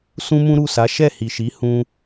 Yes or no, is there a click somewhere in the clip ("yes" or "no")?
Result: no